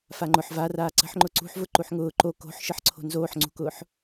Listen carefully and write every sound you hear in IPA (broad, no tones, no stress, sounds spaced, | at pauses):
f a ŋ͡ǃ ʊ ħ v a r aː ǀ ə̤ ħ ŋ͡ǃ ʊ ǀ ṳ ħ v ʊ ǃ u ħ ŋ ʊː ǃ o k o̤ ħ ʃ ə ħ ǀʰ o̤ n z oː ħ ŋ͡ǀ ṳ k ʊː ħ